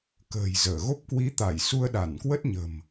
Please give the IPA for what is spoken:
k ə̤ː˨˩ j z əː˧˩ ɣ o˦˥ p̚ k w i˨˦ t̪ a˧˩ j s u˧ ə̯ ɗ a˧˩ n k w ə˦˥ t̚ ɲ ə̤˨˩ m

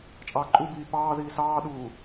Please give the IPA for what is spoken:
t͡ʃʼ ɑː ǃʼ u b iː p ɑː ð iː s ɑː ɗ uː

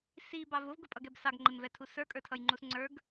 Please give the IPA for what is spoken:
s i b ɑ v ʊ v ɡ ʊ pʼ ʌ ɡ ɛ b s ɑ ɡ ŋ͡ǃ ɪ m v ɛ tʰ u s ə˞ kʼ ə˞ tʰ ʌ j ŋ͡ǃ u s ŋ͡ǀ ə˞ ɡ

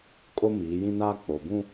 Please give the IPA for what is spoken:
kʼ o˦ m iː˨˦ j ĩ˦ n aː˦ k͡p o˨ b ũ˦

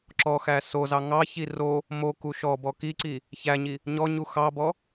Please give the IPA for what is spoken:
ǁ ɔ x æ s o z ɑ ŋ ɑ ç i r o | m o k u ʃ ɔ b ɔ k i ǀ i | ç æ ɲ i | ɲ ɔ ɲ u x ɑ b ɔ

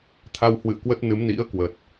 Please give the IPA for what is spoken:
t̪ʰ a˧ w h w ɨ̰˧˨ ə̯ k w ə˦˥ t̚ n ɨ˨˦ m n ḭ˧˥ ə̯ k w ə˨˩ t̚

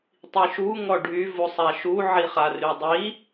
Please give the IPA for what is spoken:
tˤ i ʃ u ŋ ɔ ɖʱ y v u sˤ a ʃ u ʕ i χ a r y dˤ i

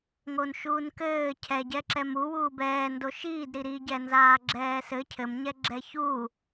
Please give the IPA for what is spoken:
ŋ o n ʃ uː n k ɘː cʰ ɛ ɟ ɛ ǁ ɛ m u w uː b ɛː n d o ʃ iː d ɾ i ɾ i ɟ ɛ n z aː ɡ͡ǁ ɛː s ɘ cʰ ɘ m ɲ ɛ ɡ͡ǁ ɛ ç uː

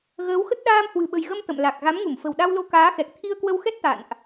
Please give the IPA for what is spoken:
ɣ əː˨˦ w x ə˦˥ t̚ ɗ aː˧ m h w ɨ̤˨˩ ɓ ə̤˨˩ j ɣ ə˧ m t̪ ə̰˧˨ m l a˨˩ k̚ ɣ a˨˦ m ŋ u˧˩ m f ə̤˨˩ w ɗ a˧ w l o˧ k aː˨˦ x ɛ˨˩ k̚ t̪ʰ i˧ ə̯ k w ə˧ w x ɛ˦˥ t̚ t̪ a̰˧˨ n ʔ

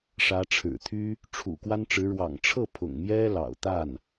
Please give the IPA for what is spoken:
ʂ ä˧˥ ʈ͡ʂʰ ɻ̩˨˩ t̪ʰ y˥ | ʈ͡ʂʰ ṵ˨˩ k w a˥ n ʈ͡ʂ ɻ̩˧˥ ɻ w ɑ̰˨˩ ŋ ʈ͡ʂʰ ɤ˥˩ pʰ ʊ̰˨˩ ŋ m j ɛ˥ l ɑ̰˨˩ ʊ̯ t̪ a˥˩ n

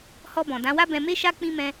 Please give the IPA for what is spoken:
h ɔ˧ b ɔ̃˨ d ã˨˦ w a˦ b ɛ̃˧ m e˦ ʃ a˦ k͡p ĩ˦ m ɛ̃˦

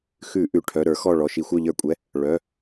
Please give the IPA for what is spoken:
x ʉ˧˩˧ ʔ ʉ˩˧˩ ʈʰ œ˩˧˩ ɾ ə˞˧˩˧ x ɔ˧˩ ɭ ɔ˩˧˩ ʃ i˧˩˧ xʷ œ˧˩ ʎ ə˞˧˩˧ kʷʼ ɛ˩˧˩ | ɭ œ˩˧˩

